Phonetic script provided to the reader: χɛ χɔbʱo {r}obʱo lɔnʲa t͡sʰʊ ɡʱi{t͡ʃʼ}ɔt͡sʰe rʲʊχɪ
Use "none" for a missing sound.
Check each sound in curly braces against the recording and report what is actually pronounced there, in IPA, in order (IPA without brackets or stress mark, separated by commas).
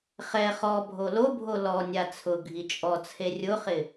l, t͡ʃʼ